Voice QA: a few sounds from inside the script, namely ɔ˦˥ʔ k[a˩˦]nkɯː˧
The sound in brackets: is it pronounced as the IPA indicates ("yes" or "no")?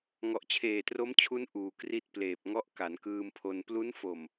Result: yes